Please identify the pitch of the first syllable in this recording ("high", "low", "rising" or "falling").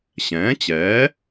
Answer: rising